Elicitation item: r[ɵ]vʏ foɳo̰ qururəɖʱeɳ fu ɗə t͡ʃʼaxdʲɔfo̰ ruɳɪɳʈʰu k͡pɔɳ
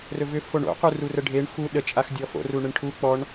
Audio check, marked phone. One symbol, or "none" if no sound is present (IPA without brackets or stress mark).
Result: ɵ